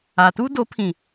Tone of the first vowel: low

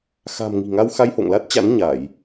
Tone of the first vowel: low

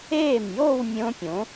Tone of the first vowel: falling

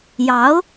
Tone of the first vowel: rising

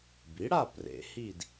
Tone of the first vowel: rising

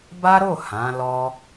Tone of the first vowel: high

